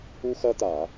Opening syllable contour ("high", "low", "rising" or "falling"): high